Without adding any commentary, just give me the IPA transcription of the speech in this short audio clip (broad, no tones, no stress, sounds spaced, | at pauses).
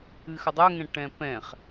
ɨ x ə dˤ ʏ ŋ ɛ̃ ʈ ɛ̃ p ɛ̃ χ